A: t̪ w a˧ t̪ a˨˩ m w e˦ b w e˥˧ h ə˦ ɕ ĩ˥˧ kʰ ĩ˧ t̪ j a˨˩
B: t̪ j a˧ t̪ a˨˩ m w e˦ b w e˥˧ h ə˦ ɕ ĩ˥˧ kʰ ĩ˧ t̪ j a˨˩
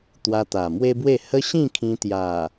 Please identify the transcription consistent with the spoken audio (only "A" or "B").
A